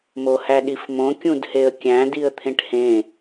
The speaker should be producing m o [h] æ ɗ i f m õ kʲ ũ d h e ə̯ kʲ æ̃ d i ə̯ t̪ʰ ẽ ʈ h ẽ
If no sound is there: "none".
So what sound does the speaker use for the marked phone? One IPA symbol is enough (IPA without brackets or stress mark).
h